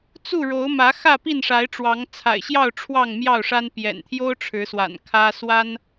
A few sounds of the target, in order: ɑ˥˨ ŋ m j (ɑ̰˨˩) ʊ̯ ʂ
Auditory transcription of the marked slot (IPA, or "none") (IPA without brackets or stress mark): ɑ˥˨